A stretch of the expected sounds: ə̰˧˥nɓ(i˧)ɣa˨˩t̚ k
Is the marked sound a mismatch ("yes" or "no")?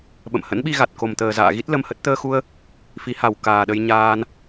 no